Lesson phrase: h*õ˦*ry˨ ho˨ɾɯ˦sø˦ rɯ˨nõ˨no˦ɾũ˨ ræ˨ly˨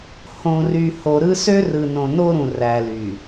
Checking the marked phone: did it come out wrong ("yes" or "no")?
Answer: yes